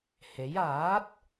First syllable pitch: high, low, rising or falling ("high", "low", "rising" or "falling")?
rising